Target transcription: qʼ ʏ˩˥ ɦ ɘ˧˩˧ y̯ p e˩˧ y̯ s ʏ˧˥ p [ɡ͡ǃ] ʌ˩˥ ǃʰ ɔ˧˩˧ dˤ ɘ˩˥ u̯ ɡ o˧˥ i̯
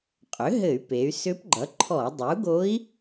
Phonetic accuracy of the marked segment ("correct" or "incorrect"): correct